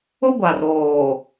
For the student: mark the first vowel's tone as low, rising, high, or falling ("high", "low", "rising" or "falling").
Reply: high